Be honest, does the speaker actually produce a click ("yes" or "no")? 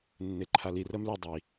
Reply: yes